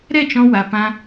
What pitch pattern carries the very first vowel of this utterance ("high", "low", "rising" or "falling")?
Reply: falling